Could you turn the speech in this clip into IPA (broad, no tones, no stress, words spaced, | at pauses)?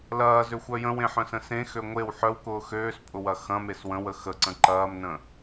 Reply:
lɐːzøxʷœ jə̃wẽħœ̃sə̃ sẽxø ŋʷew ħœwkʊː xøːspʼʊwɐ xɐ̃mes wə̃wə xəǀə̃ ǃɐːmnə̃